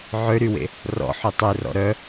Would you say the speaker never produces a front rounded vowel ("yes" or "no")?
no